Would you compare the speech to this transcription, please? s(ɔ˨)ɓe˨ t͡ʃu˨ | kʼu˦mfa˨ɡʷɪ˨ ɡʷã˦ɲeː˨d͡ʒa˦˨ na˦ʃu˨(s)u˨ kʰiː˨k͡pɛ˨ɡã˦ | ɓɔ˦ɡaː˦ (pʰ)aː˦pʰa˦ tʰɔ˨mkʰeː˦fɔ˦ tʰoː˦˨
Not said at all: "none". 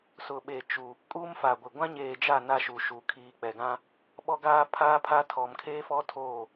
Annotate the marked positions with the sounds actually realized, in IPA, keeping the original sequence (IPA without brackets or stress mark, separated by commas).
ʊ˨, ʃ, pʰ